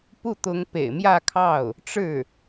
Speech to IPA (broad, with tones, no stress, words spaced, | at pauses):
pu˥˩ t̪ʊ˧˥ŋ pḛ˨˩ɪ̯mjä˥˧ kʰɑ˥˩ʊ̯ | ʈ͡ʂɻ̩˥˩